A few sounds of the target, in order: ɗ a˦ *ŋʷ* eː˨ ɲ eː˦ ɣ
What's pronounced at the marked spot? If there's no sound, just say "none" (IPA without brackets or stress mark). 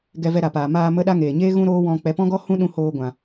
ŋ